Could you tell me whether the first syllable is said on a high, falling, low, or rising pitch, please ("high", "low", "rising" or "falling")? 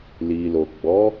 low